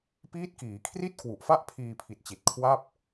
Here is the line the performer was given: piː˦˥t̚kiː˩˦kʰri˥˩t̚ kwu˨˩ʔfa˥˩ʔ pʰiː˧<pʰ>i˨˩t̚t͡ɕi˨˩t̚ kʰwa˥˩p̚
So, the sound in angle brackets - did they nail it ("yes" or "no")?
yes